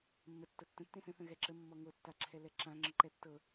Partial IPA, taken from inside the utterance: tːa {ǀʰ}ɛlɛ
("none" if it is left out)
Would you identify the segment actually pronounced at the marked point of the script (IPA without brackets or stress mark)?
ǁʰ